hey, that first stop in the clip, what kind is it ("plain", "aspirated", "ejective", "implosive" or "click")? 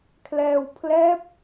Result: aspirated